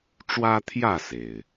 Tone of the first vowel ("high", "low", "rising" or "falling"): high